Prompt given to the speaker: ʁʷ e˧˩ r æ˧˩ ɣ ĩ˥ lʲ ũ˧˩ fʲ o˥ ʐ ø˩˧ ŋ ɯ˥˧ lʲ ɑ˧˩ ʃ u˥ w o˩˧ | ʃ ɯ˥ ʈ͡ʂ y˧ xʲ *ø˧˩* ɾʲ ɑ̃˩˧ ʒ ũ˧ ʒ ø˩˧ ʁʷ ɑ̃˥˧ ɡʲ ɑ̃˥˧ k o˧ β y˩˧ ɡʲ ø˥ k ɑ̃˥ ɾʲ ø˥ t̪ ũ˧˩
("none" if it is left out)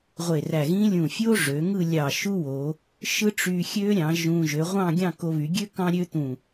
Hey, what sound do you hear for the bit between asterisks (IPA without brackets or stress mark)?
ø˥